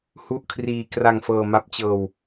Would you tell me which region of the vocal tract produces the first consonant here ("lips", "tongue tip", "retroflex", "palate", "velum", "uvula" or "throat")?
throat